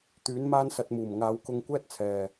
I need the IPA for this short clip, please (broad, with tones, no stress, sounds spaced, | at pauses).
t̪ yː˨˥ n m aː˥ n s ɐ˧ t̚ m uː˨˩ m ŋ aː˨˧ w k ʊ˧ ŋ kʷ ɛː˥ t̚ t͡sʰ ɛː˨